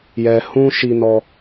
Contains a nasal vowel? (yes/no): yes